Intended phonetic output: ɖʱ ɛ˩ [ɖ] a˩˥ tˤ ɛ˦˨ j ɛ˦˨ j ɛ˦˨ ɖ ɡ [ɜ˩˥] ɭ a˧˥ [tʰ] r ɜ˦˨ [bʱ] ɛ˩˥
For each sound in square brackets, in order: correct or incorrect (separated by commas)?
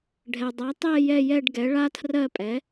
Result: incorrect, incorrect, correct, incorrect